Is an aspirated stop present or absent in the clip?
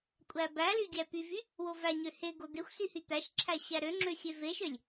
present